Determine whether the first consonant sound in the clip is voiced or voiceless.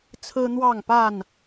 voiceless